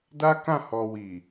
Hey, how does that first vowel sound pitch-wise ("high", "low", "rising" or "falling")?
high